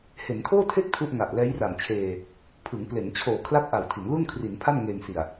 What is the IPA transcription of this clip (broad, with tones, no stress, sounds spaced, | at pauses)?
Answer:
h e˩˦ n tʰ oː˥˩ tʰ e˥˩ k̚ tʰ u˥˩ ʔ ŋ a˨˩ ʔ l ɛː˦˥ j r a˨˩ m t͡ɕʰ eː˧ | pʰ ɯ˩˦ ŋ p l e˩˦ n t͡ɕʰ oː˨˩ kʰ l a˥˩ k̚ ʔ a˨˩ w tʰ i˩˦ n l u˥˩ n kʰ r i˩˦ n pʰ a˥˩ n ŋ eː˧ ŋ s i˨˩ a̯